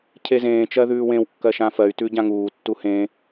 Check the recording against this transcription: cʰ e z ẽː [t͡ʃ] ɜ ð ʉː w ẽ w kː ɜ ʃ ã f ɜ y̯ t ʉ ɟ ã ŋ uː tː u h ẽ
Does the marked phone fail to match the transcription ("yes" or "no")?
no